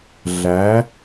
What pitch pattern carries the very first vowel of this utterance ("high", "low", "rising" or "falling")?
rising